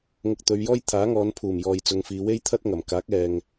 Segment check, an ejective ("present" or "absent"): absent